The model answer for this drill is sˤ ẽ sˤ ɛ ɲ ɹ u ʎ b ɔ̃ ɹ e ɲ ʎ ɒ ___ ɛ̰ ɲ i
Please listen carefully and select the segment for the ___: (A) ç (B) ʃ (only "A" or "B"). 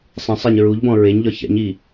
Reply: A